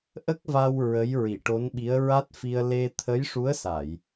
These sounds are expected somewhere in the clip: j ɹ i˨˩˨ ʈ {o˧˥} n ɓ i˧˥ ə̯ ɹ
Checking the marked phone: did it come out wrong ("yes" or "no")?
no